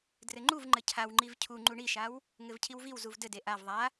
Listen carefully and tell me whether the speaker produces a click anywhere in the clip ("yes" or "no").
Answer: yes